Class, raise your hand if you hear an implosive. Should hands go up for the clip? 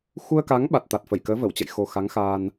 yes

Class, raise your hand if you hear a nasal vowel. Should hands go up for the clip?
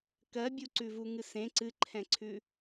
yes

